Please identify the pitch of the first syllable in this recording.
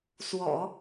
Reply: low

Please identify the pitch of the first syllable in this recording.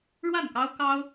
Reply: falling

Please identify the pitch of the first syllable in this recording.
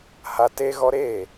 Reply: high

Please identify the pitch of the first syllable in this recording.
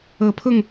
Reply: rising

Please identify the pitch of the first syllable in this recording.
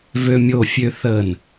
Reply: low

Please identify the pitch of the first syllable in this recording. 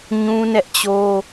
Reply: high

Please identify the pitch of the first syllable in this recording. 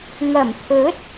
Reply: low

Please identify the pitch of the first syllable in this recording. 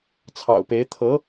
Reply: low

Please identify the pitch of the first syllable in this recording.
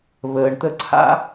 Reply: low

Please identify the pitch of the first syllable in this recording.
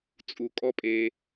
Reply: low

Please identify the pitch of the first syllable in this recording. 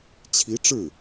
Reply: rising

